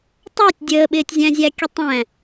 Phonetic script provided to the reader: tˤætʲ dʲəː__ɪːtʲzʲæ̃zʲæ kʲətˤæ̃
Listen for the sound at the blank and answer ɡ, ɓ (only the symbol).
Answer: ɓ